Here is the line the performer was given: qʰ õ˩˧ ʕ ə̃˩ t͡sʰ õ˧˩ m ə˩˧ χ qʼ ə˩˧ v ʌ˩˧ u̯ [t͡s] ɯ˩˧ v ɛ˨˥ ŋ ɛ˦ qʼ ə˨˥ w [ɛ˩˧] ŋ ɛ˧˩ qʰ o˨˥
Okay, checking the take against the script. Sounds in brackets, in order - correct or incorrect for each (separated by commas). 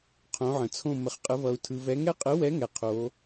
incorrect, incorrect